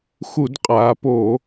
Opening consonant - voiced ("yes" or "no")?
no